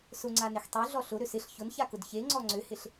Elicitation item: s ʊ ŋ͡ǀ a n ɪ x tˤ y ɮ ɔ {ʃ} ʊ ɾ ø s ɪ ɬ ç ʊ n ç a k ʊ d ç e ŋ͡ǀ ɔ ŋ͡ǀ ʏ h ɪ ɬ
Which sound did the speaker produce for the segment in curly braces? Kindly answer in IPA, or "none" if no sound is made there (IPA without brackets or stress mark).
ɬ